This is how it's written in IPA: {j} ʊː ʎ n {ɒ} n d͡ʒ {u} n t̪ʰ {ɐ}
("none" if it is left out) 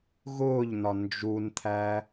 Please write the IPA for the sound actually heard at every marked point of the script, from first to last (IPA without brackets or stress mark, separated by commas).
ɣ, ɒ, u, æ